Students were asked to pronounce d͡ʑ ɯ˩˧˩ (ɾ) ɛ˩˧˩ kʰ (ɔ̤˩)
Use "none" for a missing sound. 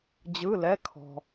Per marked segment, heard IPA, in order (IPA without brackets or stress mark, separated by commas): l, ɔ̤˩